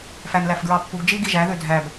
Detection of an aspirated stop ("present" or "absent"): absent